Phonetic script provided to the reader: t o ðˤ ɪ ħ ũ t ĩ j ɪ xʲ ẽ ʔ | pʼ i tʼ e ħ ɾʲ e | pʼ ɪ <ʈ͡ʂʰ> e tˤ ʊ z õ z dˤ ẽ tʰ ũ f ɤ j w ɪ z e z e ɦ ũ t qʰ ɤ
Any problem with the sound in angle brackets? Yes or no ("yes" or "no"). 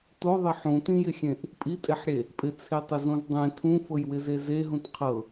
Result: yes